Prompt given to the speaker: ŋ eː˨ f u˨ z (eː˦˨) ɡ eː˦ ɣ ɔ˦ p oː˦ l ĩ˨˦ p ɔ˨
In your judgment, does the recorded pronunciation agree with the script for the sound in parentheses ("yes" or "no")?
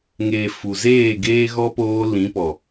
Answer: yes